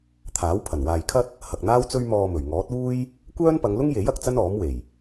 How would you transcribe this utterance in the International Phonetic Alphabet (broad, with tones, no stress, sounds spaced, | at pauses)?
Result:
t̪ʰ aː˨˥ w pʰ ɐ˨˩ n w aː˨ j kʰ ɐ˥ t̚ | h ɐ˨ k̚ n̪ aː˥ w t͡s ɵ˥ ɥ m ɔː˧ m ɵ˨˩ ɥ ŋ ɔː˨˥ t̚ uː˥ j | kʷ œː˥ n p ɐ˨˧ ŋ l ʊ˥ ŋ j e˨˥ j ɐ˧ k̚ t͡s ɐ˥ n ɔː˨˥ m w e˨˩ j